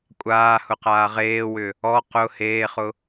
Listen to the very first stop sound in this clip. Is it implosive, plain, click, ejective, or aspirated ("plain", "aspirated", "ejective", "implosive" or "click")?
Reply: ejective